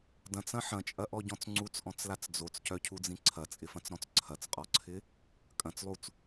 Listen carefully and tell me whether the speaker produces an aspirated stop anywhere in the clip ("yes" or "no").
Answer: yes